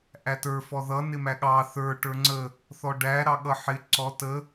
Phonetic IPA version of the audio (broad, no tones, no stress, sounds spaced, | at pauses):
ʔ æ t ə˞ f ɔ ð ʌ n ɪ m æ ɠ ɑ θ ə˞ ʈ ə˞ ŋ͡ǀ ə | θ ɔ ɖ æ ɾ ɑ ɠ ʌ ħ ɪ ǀ ɔ t ə